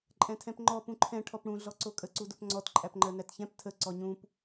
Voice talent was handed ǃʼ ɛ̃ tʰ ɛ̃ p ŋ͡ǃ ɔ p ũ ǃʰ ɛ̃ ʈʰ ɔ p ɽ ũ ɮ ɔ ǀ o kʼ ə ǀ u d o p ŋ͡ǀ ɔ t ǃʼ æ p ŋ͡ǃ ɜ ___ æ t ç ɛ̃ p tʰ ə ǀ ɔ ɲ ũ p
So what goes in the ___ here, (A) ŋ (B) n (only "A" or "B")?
B